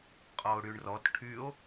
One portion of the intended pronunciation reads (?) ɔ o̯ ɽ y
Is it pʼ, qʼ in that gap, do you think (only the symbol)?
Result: qʼ